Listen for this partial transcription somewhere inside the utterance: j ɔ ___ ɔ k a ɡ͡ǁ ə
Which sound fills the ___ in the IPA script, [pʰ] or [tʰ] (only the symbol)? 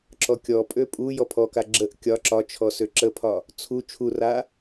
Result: pʰ